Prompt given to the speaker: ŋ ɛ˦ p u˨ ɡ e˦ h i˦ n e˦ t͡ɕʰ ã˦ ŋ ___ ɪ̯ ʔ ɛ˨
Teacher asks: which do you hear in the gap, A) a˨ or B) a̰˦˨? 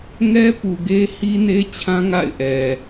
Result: B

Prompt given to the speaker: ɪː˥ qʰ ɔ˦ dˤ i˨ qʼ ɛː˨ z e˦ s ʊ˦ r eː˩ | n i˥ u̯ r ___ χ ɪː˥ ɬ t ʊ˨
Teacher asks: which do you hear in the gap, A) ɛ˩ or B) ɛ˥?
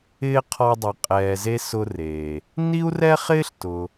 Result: B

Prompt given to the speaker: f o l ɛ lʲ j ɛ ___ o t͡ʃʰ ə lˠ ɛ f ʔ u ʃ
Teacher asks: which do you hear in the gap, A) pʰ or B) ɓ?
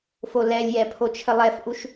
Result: A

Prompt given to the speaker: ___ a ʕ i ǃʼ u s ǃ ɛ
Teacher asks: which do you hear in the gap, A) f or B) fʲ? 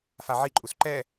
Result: A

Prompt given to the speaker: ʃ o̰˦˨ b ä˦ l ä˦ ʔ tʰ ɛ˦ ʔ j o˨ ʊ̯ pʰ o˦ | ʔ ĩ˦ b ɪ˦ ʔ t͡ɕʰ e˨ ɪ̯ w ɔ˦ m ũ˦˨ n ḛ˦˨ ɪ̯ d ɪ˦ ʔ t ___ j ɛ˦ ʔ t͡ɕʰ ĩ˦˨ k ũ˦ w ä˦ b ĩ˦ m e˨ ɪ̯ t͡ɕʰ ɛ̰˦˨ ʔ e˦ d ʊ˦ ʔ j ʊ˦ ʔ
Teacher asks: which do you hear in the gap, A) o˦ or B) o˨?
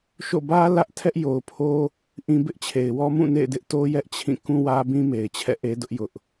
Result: A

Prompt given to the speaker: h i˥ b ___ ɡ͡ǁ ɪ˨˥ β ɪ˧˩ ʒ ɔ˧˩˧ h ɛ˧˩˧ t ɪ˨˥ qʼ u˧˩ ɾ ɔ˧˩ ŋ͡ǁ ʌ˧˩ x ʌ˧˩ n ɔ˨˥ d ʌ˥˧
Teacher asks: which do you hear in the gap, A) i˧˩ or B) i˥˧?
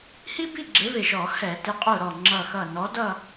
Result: B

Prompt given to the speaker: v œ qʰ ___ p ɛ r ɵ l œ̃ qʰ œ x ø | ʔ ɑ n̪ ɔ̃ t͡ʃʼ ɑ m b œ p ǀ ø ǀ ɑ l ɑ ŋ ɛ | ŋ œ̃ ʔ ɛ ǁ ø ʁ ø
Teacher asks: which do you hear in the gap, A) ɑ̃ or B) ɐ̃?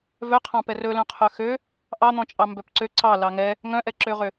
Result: A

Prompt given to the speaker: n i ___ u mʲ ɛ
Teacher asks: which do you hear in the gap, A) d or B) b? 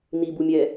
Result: B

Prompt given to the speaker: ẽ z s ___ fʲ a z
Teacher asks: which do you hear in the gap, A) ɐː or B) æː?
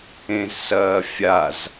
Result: A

